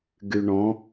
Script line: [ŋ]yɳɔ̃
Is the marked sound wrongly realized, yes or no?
yes